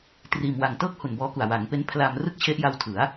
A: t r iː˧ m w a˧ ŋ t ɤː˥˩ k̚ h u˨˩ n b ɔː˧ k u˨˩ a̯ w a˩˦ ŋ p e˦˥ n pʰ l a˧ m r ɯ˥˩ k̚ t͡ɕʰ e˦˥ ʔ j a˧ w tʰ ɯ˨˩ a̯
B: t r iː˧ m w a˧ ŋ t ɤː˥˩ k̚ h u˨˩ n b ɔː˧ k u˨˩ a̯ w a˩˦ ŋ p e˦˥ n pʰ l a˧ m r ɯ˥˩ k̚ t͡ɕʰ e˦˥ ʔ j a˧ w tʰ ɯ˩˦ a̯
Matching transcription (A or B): B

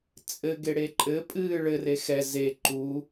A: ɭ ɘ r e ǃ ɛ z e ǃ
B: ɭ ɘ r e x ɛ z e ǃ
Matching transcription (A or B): B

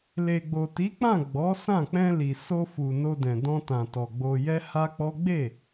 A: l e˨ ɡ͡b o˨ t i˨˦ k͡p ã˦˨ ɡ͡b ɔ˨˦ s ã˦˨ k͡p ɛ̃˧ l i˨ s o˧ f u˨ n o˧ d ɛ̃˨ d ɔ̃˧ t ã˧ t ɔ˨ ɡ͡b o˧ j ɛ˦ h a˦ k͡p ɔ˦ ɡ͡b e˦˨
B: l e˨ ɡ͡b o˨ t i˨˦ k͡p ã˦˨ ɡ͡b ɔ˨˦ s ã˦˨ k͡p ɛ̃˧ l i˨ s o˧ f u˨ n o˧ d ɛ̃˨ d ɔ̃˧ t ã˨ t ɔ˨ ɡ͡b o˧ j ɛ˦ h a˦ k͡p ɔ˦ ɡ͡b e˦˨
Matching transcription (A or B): B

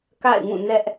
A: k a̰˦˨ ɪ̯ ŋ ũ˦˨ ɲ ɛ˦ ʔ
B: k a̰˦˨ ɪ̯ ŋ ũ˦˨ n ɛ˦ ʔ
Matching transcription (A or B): B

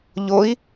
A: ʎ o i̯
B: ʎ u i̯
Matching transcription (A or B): A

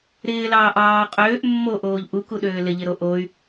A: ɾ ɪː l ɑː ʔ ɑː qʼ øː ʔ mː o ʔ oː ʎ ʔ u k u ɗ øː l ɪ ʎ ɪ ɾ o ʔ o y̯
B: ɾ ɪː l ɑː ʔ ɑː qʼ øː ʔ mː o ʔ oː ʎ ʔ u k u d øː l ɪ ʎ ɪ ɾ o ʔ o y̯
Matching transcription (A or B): A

